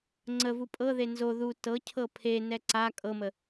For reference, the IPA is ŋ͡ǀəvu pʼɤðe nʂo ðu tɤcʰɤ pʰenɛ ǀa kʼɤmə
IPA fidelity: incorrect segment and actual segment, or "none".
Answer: ʂ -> z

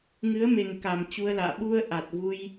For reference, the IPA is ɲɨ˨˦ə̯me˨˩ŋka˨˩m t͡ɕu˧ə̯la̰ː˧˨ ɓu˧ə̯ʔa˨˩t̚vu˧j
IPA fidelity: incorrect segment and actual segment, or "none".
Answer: ɲ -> ŋ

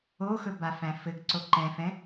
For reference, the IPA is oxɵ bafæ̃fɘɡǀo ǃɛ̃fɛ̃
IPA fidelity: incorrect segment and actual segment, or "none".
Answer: none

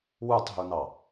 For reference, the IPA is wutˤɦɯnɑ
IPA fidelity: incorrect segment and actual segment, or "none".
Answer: ɯ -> u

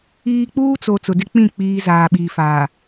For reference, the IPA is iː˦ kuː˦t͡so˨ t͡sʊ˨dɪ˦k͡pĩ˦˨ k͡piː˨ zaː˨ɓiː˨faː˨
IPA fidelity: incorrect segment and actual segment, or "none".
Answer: k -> k͡p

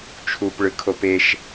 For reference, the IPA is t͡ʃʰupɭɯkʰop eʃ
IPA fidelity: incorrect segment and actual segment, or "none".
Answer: none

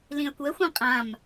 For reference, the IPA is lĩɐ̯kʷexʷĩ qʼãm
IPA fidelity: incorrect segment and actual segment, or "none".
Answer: e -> ɛ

